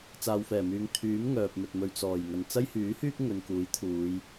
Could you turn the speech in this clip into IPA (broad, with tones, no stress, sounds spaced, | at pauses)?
t͡s aː˨ w f ɛː˨˩ m yː˨ ŋ t̪ʰ yː˨˥ m ŋ œː˨ p̚ m ɵ˨ t̚ m ɵ˧ ɥ t͡s ɔː˨˩ j ŋ ɐ˨˩ n t͡s ɐ˥ j h yː˨˥ h yː˥ k̚ ŋ ɵ˨ n k uː˨˥ j t̪ʰ uː˨˧ j